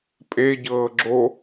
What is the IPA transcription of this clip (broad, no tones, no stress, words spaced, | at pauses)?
pʼeɟɤː ɡ͡ǁo